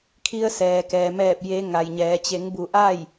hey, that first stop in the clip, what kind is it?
aspirated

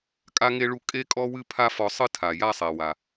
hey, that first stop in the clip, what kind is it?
ejective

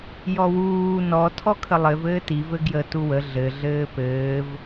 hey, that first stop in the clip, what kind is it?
aspirated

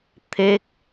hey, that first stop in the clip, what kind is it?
aspirated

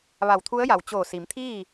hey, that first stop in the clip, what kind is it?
aspirated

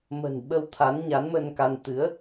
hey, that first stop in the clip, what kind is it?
implosive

